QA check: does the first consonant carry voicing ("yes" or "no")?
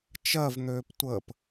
no